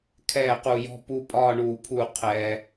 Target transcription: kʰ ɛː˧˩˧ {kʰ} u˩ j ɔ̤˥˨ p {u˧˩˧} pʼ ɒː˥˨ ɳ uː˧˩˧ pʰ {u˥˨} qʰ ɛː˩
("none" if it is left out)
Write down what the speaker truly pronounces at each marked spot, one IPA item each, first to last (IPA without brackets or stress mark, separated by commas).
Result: q, u˥˨, u˧˩˧